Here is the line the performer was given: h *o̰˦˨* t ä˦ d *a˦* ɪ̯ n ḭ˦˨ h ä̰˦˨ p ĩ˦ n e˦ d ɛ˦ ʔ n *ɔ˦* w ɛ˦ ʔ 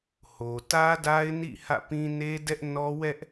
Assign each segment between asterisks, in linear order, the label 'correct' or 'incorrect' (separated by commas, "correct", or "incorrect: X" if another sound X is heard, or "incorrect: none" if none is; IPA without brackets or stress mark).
incorrect: o˨, correct, correct